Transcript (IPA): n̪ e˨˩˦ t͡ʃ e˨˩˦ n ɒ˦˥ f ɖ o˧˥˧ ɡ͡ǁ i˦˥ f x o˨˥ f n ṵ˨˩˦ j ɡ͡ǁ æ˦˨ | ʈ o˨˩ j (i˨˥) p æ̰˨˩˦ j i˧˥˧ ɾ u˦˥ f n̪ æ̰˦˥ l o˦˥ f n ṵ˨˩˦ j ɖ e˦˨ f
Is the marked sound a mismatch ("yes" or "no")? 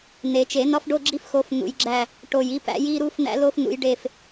no